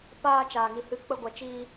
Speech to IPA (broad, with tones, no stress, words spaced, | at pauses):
paː˧ t͡ʃaː˨ŋi˨hɨ˧ k͡pə˧ɡʷɛ˨t͡ʃiː˧